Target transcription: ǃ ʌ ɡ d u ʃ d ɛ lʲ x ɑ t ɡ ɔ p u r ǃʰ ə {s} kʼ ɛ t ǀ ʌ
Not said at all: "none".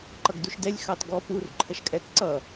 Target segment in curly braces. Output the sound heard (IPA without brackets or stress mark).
ʃ